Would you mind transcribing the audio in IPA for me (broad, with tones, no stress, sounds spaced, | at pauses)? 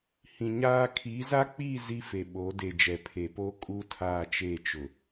h ĩ˨ ɲ aː˦ kʰ i˨˦ z a˦ k͡p i˦˨ z i˦ f e˨ ɓ o˨˦ d e˨ d͡ʒ ɛ˨ pʰ e˨ p o˦ kʼ u˦ tʰ aː˦˨ t͡ʃ e˦˨ t͡ʃ ʊ˨